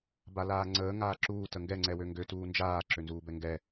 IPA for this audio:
b a l aː ŋ͡ǀ əː ŋ aː ǁ uː t ə ŋ ɡ ɛ ŋ͡ǀ ɛ w ø ŋ ɡ ø t uː n d͡ʒ aː ǁ ø n z uː b ɛ ŋ ɡ ɛ

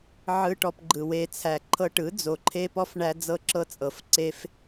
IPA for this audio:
ʕ ɯ˧ ʈ ɔ˧ p ɡ͡ǃ ɯ˨ w e˧ t͡sʰ æ˨ ǃʰ ɤ˧ ʈ ɯ˨˦ d͡z o˨ ǃʰ e˦ p ɔ˦ f ɳ æ˦ d͡z ɤ˦˨ ǁ ɤ˦ t͡sʼ ɤ˨ f ǀ e˦ f

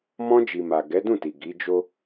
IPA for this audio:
m ɔ̃˧ d͡ʒ i˨ m a˨ ɡ ɛ˨˦ d ũ˦˨ t i˨ ɡ i˨˦ d͡ʒ o˦

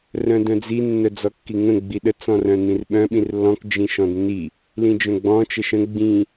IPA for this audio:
r œ̃ d œ̃ d͡z i nː œ d͡z ɔ kː i ŋ ə̃ ɡ͡b i ɗ ə t͡s ɔ̃ r œ̃ n̪ ĩ r ɓ œ̃ ɓ ĩ r lː ɔ̃ k d͡ʒ ĩ ʃ ɔ̃ d nː i | l ĩ d͡ʒ œ̃ ɡ͡b ɔ̃ t͡ʃ ə ʃ ə̃ ɡ͡b ĩ

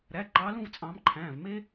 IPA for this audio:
ɾ æ˩˧˩ ǃ ɑː˨˦ l ũ˥˧ v t͡sʼ ɑ̃ː˨˦ m ǃʰ æ̃ː˩˧˩ v m e˥

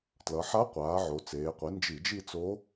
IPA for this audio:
t l ʌ˩˧ ħ a˧˥ qʷ aː˩˧ ʕ o˩˧ t͡s eː˩˧ qʷ i˩˥ n d͡ʒ i˧˩˧ d͡ʒ i˥˧ t͡s o˧˥

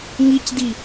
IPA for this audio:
ŋ i c d i

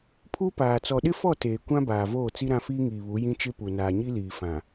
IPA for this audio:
pʰ u˦ p aː˨ t͡s ɔ˨ ɗ ɪ˦ f ɔ˦˨ t eː˨ kʷ ã˦ b aː˨ v oː˦˨ t͡s i˦ ɾ ã˦ f iː˦ ŋ iː˨ β u˨˦ j ĩ˦ t͡ʃ ɪ˦ p u˨ n aː˨ ɲ i˦ l iː˨ f ã˨

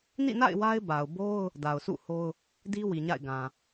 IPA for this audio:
n ḭ˦˨ n a̰˦˨ ɪ̯ w a˦ ɪ̯ b a˨ ʊ̯ b o˦ ʊ̯ | d a˨ ʊ̯ sʰ ṵ˦˨ h o˦ ʊ̯ | d i˦ w i˨ ɲ a̰˦˨ ɪ̯ ɡ ã˨

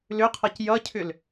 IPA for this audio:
l ʏ qʰ ʌ c j ʌ cʰ ʏ l

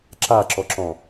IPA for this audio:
ǁ a ǁ ɔ ǁ ɔ̃

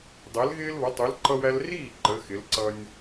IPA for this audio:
dˤ ɛ˨˦ l ɣ ɪː˦ l β ʌ˨˦ tˤ u˨˦ l ǃ ʌ˦ w æ˦ l r iː˥˩ ǃ ə˨˦ x ɪ˨˦ l ǀ ʌ˦ nʲ

